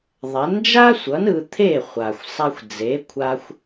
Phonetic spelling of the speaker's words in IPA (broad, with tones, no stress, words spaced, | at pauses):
ðˤɛ˩˥nd͡ʒa˥sʷʌ˩˥n ɯ˧t̪ʰe˥˩ χʷa˩xʷ sˤa˧xʷd͡ze˩˥ kʷʰa˧xʷ